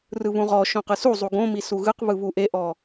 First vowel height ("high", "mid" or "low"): high